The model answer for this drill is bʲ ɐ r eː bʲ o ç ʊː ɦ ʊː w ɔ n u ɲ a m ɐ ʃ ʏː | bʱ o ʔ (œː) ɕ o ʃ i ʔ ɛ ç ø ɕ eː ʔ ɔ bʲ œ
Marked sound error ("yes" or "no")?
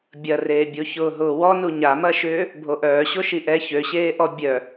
no